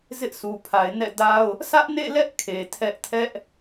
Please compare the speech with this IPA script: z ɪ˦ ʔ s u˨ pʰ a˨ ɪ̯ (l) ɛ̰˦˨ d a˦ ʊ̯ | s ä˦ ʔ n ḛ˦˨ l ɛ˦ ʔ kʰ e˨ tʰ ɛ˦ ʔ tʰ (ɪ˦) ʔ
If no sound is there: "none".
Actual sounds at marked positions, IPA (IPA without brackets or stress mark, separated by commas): n, ɛ˦